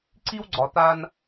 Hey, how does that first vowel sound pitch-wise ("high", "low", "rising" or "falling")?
high